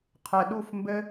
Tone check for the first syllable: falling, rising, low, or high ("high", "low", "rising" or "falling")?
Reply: low